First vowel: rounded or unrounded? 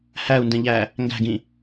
unrounded